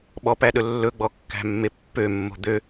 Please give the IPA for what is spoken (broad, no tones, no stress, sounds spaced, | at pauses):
ɓ ɔ p æ ɗ ɵ lː ɵ ɡ͡b ɔ kː æ̤ mː e pː ø mː o̤ d̪ ø